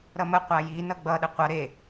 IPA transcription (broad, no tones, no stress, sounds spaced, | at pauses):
ɾ ʌ m ə qʷ a j i n ʌ ɡ͡b ʌ ɗ ə qʷ ʌ ɾ e